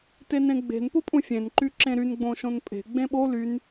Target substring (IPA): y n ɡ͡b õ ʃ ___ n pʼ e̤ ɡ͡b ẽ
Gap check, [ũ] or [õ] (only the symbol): õ